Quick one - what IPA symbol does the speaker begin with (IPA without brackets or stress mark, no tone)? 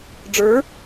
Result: ɖ͡ʐ